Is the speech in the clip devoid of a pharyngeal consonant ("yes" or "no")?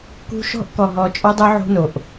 no